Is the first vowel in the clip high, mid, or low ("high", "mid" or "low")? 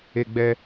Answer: mid